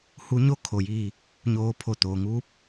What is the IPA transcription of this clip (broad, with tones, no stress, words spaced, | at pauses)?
hu˧˥ɲo˥˨ kʰo˩jiː˧˩ | ɲoː˧pʰo˧˩t̪oː˩ŋuː˧˥p̚